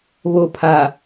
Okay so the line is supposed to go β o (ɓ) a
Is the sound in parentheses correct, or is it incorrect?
incorrect